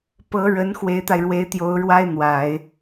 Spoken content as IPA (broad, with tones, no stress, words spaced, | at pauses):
pɤ˧˥ɻə˧˥n xwe˧˥ɪ̯t̪a˧ɪ̯ɻwe˧˥ɪ̯ t̪jo˧˥ʊ̯ ɻwa˥ɪ̯n̪wa˨˩˦ɪ̯